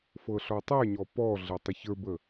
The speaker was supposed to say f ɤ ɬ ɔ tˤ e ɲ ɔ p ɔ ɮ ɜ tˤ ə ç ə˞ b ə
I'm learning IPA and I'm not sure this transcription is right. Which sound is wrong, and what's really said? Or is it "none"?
none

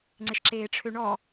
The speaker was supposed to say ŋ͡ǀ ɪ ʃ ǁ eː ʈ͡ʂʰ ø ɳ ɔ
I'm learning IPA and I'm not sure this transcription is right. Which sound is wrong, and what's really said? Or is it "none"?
none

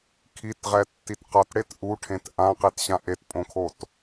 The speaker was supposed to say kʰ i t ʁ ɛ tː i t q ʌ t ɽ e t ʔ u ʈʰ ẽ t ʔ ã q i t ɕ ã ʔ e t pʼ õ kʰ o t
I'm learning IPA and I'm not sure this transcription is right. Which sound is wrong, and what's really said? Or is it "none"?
none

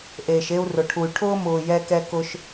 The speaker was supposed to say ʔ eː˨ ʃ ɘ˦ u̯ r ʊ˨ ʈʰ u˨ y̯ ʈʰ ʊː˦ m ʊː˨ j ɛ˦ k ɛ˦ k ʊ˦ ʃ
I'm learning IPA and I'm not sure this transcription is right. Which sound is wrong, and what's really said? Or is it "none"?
ɘ˦ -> e˦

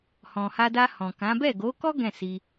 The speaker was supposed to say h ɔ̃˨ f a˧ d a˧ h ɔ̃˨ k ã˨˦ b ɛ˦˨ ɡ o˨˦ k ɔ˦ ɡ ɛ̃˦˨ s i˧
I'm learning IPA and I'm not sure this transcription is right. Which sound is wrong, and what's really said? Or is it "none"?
f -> h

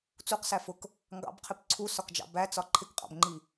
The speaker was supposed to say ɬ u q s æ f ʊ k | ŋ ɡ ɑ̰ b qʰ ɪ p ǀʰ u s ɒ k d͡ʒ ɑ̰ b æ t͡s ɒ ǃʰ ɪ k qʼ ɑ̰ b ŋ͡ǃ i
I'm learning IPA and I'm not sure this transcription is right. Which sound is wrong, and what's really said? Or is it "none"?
ɬ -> t͡s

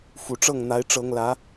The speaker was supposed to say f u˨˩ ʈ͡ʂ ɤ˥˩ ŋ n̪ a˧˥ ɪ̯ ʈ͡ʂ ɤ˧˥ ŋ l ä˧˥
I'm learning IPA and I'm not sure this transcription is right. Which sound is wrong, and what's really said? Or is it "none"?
none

